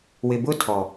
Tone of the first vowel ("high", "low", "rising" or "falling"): low